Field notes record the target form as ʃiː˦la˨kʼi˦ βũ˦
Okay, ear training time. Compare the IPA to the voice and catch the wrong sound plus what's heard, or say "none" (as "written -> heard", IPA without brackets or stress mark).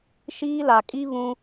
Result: none